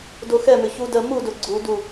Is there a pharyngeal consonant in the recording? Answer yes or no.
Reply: no